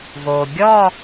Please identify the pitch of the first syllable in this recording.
low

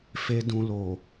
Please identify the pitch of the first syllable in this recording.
low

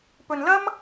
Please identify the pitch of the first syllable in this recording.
low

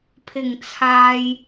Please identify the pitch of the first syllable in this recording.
low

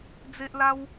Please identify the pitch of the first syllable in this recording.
high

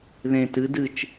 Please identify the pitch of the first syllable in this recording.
low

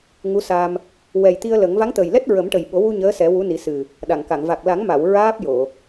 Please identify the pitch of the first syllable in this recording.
rising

